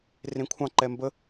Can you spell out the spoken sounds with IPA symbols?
r ẽ kʷʰ ɑ̃ ǃ ɛ m b ə

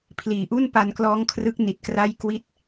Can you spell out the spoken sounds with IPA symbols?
pʰ l iː˩˦ ʔ u˥˩ n p a˧ n k l ɔː˦˥ ŋ kʰ r ɯ˦˥ k̚ n i˨˩ t̚ k r a˥˩ j k w i˥˩ t̚

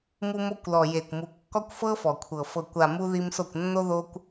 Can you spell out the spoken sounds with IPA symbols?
m u˧ m o˧ kʷ l ɔ˨ j e˨ kʷ m u˨ kː ɔ˦ kʷ f ɤ˦ f ɔ˨ kʷʰ ɤ˨ f ɤ˨ kʷ a˨ m u˧ ð i˧ m s o˦˨ kʷ nː o˦ ð o˧ kʷ

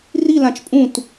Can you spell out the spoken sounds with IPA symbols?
r i l ã t͡ʃ pʼ ũ t

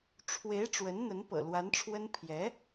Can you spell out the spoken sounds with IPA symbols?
ʈ͡ʂʰ w e˧˥ ɪ̯ ʈ͡ʂ w ə˧˥ n n̪ ə˧˥ n p ɤ̰˨˩ l w a˧˥ n ʈ͡ʂʰ w ə˥ n pʰ j ɛ˧˥

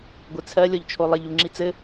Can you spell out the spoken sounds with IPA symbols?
ɡʷ ɘ t͡sʰ ɜ lʲ ɔ ʎ t͡ʃʰ o lˠ ɘ ʎ u ŋ͡ǁ i t͡s ɘ

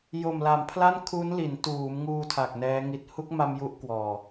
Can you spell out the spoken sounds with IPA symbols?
j o˨˩ m l a˩˦ m pʰ l a˥˩ n kʰ u˦˥ n l i˩˦ n t uː˩˦ m ŋ uː˧ tʰ a˨˩ k̚ n ɛː˦˥ ŋ i˨˩ t̚ h u˦˥ k̚ m a˧ m j u˦˥ ʔ k w ɔː˨˩

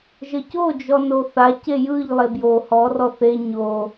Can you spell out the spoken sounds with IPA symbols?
ʒ ə c o d͡ʒ ɔ n o θ a c e j ɯ ʎ lˠ e b j o h ɔ r ɔ θ e ɲ o

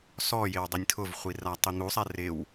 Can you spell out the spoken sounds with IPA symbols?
s ɔ j ɪ w dˤ i nʲ tʰ ʊ v χʷ i r a tˤ i n̪ u sˤ ɛ r ɪ w

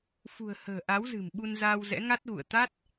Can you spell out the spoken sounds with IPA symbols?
f ṳ˨˩ ə̯ h ə̤ː˨˩ ʔ a˨˦ w z ɨ̤˨˩ m ɓ u˧ n z aː˧ w z ɛ̰˧˥ ŋ a˦˥ t̚ ɣ ṵ˧˨ ə̯ t̪ a˦˥ t̚

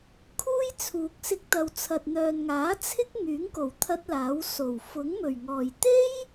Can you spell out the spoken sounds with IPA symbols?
kʰ uː˥ j t͡sʰ uː˨ k̚ s ɪ˧ k̚ t̪ ɐ˨ w t͡sʰ ɐ˨ t̚ n̪ œː˨ n ŋ aː˨˥ t͡sʰ ɪ˥ k̚ ŋ yː˨˥ ŋ k o˨˩ w t̪ʰ ɐ˥ t̚ l aː˨˥ w s o˨˩ w f ʊ˨˥ ŋ m ɵ˨˩ ɥ ŋ ɔː˨˩ j t̪ e˥ j

